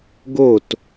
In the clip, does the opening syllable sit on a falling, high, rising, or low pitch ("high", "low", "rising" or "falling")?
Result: falling